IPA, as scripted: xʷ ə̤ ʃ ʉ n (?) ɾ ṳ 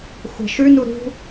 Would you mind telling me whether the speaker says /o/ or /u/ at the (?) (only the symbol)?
u